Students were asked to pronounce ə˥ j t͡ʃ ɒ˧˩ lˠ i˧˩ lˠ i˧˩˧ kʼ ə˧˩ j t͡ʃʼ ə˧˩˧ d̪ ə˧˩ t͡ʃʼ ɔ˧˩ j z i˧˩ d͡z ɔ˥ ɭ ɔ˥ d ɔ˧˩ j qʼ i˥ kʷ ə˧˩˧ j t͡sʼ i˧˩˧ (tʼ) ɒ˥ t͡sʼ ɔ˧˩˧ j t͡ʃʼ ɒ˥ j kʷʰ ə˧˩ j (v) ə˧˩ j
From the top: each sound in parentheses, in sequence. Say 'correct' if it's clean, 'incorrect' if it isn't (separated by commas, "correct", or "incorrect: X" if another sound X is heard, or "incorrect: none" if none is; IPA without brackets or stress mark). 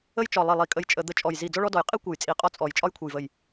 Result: incorrect: qʼ, correct